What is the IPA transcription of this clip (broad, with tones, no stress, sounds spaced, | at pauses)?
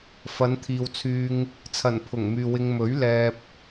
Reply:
f ɐ˨˧ n t̪ʰ iː˨ w t͡sʰ yː˧ ŋ | t͡sʰ ɐ˨˩ n pʰ ʊ˨˩ ŋ m yː˨ w ɪ˧ ŋ m ɵ˨˥ ɥ l ɛː˧ p̚